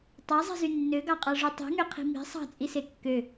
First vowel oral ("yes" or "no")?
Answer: yes